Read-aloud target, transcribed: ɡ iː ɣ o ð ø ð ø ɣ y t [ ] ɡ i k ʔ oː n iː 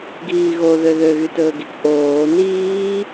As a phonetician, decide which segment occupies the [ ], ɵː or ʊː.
ɵː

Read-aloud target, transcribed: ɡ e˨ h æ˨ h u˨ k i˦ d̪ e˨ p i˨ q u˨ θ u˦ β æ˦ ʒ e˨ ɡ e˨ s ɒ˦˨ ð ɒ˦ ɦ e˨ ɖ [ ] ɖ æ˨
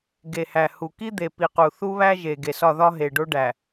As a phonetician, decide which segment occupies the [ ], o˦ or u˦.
o˦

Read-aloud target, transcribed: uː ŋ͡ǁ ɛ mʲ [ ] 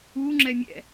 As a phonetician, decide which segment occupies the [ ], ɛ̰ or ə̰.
ɛ̰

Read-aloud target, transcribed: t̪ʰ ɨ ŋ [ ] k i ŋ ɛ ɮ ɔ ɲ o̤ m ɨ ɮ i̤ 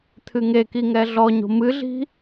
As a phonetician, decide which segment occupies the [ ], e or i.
e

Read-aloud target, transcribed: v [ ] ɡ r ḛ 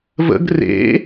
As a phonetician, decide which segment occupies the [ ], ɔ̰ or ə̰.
ə̰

